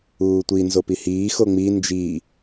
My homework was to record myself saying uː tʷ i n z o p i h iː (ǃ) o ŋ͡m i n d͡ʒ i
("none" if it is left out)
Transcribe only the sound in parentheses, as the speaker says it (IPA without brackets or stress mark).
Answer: x